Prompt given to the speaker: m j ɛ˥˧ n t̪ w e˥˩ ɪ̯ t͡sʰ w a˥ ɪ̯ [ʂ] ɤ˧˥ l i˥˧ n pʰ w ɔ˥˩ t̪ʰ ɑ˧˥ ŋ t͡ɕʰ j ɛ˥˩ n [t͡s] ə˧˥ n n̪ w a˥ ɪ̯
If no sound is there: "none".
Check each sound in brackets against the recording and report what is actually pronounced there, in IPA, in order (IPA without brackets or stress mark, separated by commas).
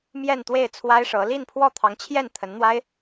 ʂ, t̪ʰ